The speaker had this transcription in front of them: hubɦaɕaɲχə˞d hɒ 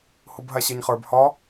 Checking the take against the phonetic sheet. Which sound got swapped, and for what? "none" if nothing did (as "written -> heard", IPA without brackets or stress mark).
d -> b